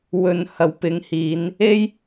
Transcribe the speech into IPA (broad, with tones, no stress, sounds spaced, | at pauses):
w ɵ˧ n h ɐ˨˧ w p ɪ˨˥ ŋ h iː˨˧ n | e˥ j